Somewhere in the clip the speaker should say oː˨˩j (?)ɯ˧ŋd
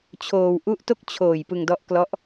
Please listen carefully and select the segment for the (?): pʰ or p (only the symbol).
p